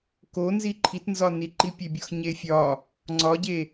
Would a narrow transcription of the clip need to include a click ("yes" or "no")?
yes